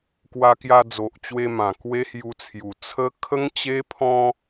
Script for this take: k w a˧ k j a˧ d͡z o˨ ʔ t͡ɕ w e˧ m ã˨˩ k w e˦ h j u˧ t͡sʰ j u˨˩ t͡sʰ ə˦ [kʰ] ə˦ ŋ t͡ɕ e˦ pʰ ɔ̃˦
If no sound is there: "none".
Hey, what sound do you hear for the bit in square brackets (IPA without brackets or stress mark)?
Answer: kʰ